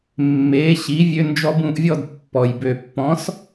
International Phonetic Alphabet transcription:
mː e˩˥ ɕ i˩˥ vʲ ø˧ n d͡ʒ ɔ˧ b ũ˥˩ ʔ vʲ ɔ˥˩ d pː ɔ˩ j b ø˩ pː ɔ̃˩˥ s

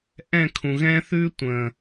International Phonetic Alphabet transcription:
ʔ ɛ̃˦˨ kʰ ũ˨ ɣ ɛ̃ː˦ θ ʉː˦ tʷ ə̃ː˨

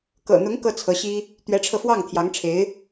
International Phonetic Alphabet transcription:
k ɤ̰˨˩ n̪ ʊ˧˥ ŋ k ɤ˥ t͡sʰ ɤ˧˥ ɕ i˥ | t̪ ɥ ɛ˧˥ ʈ͡ʂʰ ɤ˧ f w ɑ˥˩ ŋ t̪ʰ j ɑ˧˥ ŋ ʈ͡ʂʰ e˧˥ ɪ̯

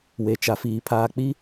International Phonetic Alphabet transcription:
w e˨ t͡ʃ a˨ f iː˨ pʰ aː˨ k͡p i˦

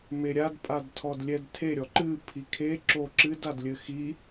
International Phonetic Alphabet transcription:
m e ɾʲ a d pʼ a d tʰ ɔ d lʲ ɛ d tʰ e ɾʲ ɔ ǃ ɨ pʰ i kʰ e ǁ o ǁ ɨ d a d lʲ ɘ x i

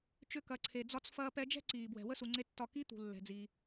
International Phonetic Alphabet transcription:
t͡ʃ ʏ˧ k ɐ˩˧ ǀʰ e˩ d͡z ɒ˧ t͡s f ɐː˧ p ɛ˧ d͡ʒ ɛ̤˥ ǀ iː˩ b w ɛ̤˩ w ə˥ s u˩ ŋ͡ǀ e˧ tː ɒ˧ k i˧˥ t̪ ṳ˩ lː ɛ̤˩ d͡z iː˩

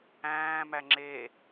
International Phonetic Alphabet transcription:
æ̃ː m æ ŋ͡ǁ e

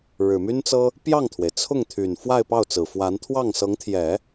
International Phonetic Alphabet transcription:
ɻ ɻ̩˨˩ m y˥ n t͡s ɤ˥ | p j ɑ˥˩ ŋ t̪ʰ w e˩ ɪ̯ t͡sʰ ʊ˥˩ ŋ t̪ʰ y˨˩ n f w a˥˧ ɪ̯ p ɑ˥˩ ʊ̯ t͡s ɹ̩˨˩ f w a˧˥ n t̪ʰ w ɑ˥˩ ŋ s ɤ˧˥ ŋ t̪ʰ j ɛ˨˩˦

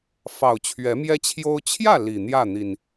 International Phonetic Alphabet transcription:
f ɑ˨˩ ʊ̯ t͡ɕʰ ɥ ɛ˨˦ m j ɛ˦ t͡ɕʰ j o˦ ʊ̯ t͡ɕʰ j ä˥˨ l i˨˩ n̪ j ä˥˨ n̪ i˨˩ n

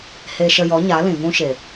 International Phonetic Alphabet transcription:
h e˧ ʃ ə˧ j ɔ˨˦ ɲ a˨˦ l ĩ˨ v ũ˦ ʃ e˨

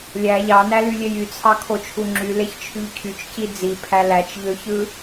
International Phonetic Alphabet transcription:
lʲ æ ʎ ɑ n æ l y lʲ e j y t͡sʰ ɑ kʰ o t͡ʃʰ u ŋ͡ǁ y l e ç t͡ʃʰ y ʎ cʰ y t͡ʃ c i d͡z i pʰ æ l æ t͡ʃ ʎ ø ç ɯ

